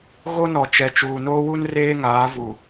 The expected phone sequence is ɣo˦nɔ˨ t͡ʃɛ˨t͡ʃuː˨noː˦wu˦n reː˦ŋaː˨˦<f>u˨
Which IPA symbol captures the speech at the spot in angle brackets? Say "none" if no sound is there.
v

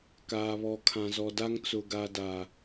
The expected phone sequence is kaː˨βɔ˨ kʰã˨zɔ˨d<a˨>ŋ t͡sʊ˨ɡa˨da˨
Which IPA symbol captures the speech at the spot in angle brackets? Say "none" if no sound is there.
a˦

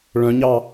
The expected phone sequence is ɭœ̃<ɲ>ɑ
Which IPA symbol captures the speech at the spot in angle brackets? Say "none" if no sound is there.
ɲ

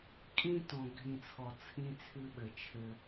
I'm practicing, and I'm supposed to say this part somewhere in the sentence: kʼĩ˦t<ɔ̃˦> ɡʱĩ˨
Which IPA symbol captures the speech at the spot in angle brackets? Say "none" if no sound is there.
ɔ̃˨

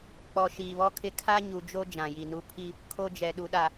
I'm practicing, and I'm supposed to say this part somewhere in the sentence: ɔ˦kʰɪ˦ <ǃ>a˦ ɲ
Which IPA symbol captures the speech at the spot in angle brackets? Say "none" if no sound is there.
kʰ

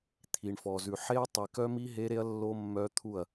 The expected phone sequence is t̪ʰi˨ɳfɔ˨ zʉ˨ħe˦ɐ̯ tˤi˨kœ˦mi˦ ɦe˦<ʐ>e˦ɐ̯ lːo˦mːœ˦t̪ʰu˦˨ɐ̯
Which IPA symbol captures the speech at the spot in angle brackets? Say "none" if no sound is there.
ɾ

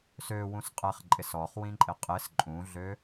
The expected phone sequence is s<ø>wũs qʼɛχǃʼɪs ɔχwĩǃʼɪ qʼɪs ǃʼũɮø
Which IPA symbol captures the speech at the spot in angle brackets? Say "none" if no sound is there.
ø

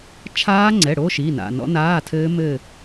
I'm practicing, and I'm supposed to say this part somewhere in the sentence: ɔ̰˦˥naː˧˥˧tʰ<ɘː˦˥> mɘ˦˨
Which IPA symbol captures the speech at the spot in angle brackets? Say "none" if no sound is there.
ɘː˦˥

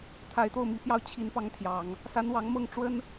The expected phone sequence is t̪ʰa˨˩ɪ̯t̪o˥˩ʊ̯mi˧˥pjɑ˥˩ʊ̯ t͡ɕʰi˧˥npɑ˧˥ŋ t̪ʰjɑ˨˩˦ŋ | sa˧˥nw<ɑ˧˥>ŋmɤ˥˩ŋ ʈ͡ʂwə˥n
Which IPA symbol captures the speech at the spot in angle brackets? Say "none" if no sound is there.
ɑ˧˥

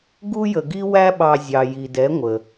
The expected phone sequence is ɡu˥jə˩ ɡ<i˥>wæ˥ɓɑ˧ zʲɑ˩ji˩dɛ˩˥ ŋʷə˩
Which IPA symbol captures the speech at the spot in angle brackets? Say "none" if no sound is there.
i˥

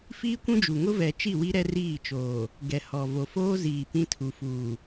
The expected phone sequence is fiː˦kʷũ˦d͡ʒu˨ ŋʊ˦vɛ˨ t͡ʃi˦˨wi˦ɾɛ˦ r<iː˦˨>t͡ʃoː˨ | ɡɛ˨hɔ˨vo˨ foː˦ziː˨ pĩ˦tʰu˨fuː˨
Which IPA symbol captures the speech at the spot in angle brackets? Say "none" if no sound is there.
iː˦˨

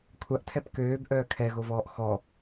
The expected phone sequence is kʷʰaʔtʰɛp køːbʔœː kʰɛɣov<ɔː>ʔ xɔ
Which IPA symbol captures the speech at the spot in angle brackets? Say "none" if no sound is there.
ɔː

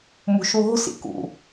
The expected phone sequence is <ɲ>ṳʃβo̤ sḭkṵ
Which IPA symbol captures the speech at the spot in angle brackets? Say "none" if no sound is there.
m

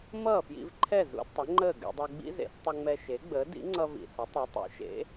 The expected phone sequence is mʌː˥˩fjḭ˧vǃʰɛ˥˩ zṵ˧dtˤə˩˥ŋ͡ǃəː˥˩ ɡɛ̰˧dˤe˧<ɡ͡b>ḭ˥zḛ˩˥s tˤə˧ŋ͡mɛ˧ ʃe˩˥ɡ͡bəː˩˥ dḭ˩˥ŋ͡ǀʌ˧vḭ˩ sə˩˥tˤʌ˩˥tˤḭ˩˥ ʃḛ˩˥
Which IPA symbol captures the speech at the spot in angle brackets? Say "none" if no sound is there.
ɡ͡b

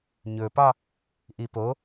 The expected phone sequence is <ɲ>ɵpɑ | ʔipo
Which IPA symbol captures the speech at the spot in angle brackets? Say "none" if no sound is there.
ɲ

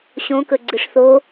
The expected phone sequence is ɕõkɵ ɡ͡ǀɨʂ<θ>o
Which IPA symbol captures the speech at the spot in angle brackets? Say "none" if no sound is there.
θ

